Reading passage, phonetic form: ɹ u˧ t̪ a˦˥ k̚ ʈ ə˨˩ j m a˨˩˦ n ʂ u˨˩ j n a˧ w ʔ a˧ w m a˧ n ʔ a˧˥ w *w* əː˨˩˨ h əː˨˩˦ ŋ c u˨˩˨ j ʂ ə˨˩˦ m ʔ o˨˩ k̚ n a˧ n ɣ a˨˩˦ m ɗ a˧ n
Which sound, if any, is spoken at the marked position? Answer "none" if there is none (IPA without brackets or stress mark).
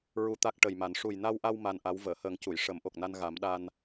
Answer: v